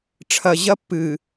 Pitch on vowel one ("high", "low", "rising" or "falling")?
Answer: low